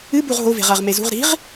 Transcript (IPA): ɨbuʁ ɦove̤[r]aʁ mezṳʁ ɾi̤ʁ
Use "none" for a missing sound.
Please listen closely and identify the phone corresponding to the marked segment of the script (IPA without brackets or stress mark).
ʁ